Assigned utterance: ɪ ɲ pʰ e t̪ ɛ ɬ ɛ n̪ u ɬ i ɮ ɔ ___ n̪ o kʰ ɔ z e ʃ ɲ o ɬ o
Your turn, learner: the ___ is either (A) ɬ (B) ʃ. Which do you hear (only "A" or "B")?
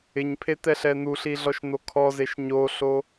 B